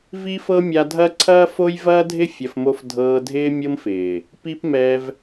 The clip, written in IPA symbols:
v i˦ f ɤ˦ mʲ a˧ dʱ ɐ˦ ǀʰ ɐː˦ f o˦ j v ɐː˦ dʱ ɪ˦ fʲ ɐ˧ f m o˦ f dʱ ɤː˧ dʱ ɪː˦ mʲ ɤ˦ m f ɪː˨ | p i˦ p m ɛ˧ v

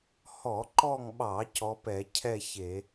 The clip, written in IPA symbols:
h ɔ˧˩˧ ǃ ɔ˦˨ ŋ ɓ ɑ˧˩˧ c ɔ˨˦ p ɛ˧˩˧ cʰ ɛ˦˨ ç e˧˩˧

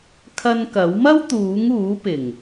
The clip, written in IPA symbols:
kʰ ɐ˧ n k ɐ˨˥ w m ɐ˥ w t̪ uː˨˥ ŋ uː˨˥ p ɪ˨˩ ŋ

